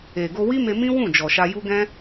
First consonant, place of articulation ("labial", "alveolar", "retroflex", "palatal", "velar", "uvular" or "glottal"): velar